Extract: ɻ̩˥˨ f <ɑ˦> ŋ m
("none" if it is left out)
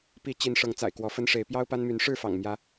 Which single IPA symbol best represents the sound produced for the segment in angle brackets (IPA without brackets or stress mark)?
ɑ̰˨˩